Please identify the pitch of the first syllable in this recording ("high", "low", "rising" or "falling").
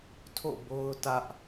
falling